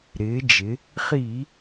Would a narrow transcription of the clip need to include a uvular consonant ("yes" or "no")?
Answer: yes